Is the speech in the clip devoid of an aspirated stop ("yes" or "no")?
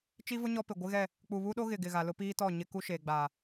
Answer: yes